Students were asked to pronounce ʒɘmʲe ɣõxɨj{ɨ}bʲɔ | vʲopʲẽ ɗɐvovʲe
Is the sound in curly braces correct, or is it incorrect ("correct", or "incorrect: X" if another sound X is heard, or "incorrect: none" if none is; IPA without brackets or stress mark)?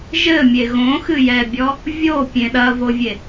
incorrect: ɛ